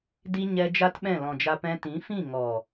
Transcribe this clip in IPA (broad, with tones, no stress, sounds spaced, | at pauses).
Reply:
d i˧ ɲ ɛ˧ d͡ʒ a˦ t ɓ ɛ̃˦˨ l ɔ̃˨ d͡ʒ a˧ p ɛ̃˧ t ĩ˨˦ f ĩ˦˨ ŋ ɔ˨